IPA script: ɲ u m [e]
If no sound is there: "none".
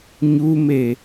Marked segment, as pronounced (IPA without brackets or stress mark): e